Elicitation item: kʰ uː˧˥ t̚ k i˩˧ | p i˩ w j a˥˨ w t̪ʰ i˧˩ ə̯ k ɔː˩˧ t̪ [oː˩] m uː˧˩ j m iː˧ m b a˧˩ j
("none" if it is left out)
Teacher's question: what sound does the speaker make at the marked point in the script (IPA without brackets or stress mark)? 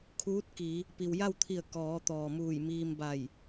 ɔː˩